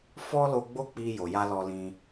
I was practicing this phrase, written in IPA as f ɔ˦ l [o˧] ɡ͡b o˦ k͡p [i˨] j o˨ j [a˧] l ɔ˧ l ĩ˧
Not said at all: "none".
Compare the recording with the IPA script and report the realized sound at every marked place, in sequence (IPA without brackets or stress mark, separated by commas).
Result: o˧, i˧, a˧